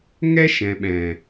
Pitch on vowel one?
high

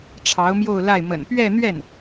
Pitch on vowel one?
rising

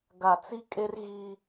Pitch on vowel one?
low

